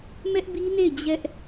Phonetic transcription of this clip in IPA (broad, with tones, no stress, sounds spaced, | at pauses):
m ɛ˦ ʔ b i˦ n e˦˨ ɪ̯ d͡ʑ ɛ˦ ʔ